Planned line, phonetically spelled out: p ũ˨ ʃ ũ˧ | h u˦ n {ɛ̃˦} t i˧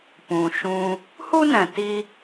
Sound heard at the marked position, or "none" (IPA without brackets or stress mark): ɛ̃˨